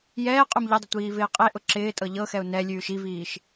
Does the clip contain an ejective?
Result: yes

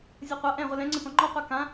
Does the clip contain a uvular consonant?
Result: yes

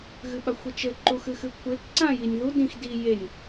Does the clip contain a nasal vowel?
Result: yes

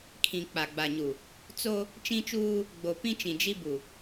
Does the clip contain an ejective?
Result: no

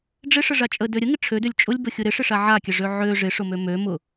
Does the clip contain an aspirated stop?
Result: yes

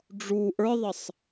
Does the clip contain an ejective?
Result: no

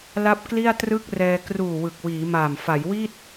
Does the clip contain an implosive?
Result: no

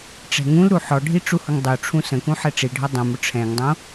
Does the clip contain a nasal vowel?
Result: yes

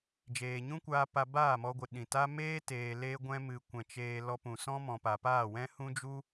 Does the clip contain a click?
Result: no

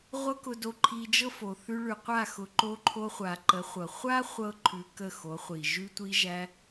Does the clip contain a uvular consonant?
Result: yes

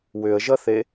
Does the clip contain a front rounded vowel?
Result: yes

